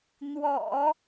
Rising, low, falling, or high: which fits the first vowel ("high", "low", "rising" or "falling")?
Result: low